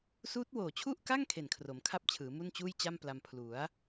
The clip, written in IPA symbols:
s uː˦˥ t̚ w oː˨˩ t͡ɕʰ u˥˩ ʔ k a˥˩ ŋ kʰ e˨˩ n kʰ r o˩˦ m kʰ a˥˩ p̚ t͡ɕʰ ɯː˩˦ m u˥˩ n t͡ɕ uː˥˩ j t͡ɕ a˥˩ m p l a˧ m pʰ l u˩˦ a̯

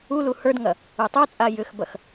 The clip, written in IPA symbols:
u l u h ə˞ d ŋ ɐ | u tˤ ə˞ t͡sʼ a j ʏ x b ɐ x

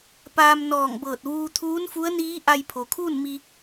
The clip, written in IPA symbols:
p aː˧ m n ɔː˧˩ ŋ b ɤː˧˩ t̚ ʋ uː˧ t̪ʰ uː˧˥ n f u˧˥ ə̯ n iː˧˥ ʔ a˧ j pʰ o˩ kʰ uː˥˨ n m i˧

